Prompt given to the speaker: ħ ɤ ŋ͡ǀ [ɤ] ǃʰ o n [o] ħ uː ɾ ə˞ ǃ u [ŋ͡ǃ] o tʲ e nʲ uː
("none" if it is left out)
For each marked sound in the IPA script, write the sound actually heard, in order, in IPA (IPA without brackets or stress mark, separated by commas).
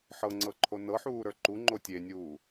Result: ɤ, ɤ, ŋ͡ǃ